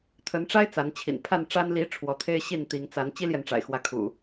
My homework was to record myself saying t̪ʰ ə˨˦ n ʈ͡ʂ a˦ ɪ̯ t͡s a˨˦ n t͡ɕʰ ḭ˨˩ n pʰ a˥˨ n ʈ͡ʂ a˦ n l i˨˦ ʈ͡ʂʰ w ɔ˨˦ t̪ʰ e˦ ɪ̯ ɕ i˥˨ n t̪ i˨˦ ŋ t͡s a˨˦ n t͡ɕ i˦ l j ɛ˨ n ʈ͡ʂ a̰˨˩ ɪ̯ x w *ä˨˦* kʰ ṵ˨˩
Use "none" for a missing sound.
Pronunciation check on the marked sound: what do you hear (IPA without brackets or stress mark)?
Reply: ä˨˦